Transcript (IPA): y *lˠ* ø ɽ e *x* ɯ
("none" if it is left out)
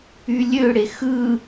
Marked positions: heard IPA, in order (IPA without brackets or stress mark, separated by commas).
lʲ, x